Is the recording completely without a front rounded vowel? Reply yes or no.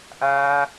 yes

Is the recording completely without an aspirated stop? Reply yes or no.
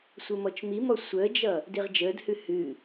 yes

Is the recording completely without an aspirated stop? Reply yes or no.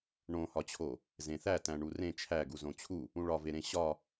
no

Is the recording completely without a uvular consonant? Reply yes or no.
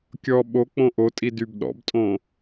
yes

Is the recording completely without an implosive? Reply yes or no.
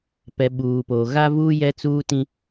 no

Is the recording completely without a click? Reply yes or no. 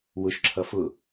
no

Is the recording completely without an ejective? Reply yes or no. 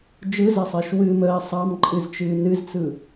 no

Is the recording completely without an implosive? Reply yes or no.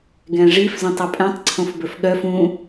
no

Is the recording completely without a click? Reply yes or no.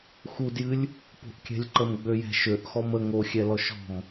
no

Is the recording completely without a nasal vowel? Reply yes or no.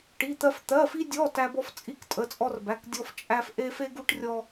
yes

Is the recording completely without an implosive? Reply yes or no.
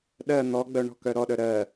no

